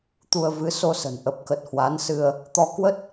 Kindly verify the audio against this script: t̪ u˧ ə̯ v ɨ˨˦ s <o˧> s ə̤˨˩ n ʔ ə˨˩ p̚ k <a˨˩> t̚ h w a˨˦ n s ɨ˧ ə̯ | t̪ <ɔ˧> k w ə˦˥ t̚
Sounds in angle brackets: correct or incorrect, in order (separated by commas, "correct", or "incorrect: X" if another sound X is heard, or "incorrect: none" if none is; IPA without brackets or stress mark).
correct, incorrect: ə˨˩, correct